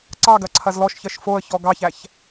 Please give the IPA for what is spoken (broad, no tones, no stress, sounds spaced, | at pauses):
ǀ ɑ ɡ ɐ ǀʰ ɐ z l ɔ ʃ ç ɜ ʃ f o ə̯ ç ɔ ɡ ɑ ç æ ç